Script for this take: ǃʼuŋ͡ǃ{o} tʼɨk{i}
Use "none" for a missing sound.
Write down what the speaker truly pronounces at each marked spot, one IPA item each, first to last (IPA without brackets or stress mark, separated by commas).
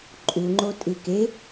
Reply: o, e